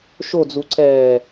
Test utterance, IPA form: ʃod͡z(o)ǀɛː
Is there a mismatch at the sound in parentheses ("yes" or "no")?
yes